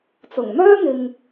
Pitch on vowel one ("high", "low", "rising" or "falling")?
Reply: low